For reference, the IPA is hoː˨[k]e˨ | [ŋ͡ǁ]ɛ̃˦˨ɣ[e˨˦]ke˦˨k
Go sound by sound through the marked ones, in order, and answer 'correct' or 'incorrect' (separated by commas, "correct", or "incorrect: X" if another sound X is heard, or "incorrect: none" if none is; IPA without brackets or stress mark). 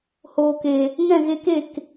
correct, incorrect: ŋ, incorrect: e˧